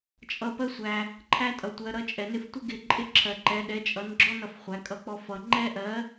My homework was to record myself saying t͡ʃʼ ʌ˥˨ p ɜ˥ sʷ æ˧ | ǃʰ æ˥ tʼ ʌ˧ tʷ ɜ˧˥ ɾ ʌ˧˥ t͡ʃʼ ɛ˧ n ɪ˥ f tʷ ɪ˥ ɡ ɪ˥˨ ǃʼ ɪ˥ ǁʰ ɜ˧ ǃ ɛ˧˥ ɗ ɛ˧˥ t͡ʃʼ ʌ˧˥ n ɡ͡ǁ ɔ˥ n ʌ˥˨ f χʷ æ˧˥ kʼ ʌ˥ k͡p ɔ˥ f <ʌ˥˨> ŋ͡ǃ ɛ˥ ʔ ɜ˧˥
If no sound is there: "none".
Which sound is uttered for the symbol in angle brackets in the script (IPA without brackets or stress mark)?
ʌ˧